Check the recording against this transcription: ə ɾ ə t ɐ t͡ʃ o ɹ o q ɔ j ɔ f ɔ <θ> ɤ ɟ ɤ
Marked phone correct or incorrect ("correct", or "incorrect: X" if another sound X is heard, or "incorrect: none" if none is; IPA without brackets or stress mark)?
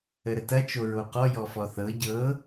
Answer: correct